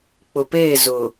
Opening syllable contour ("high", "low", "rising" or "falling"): low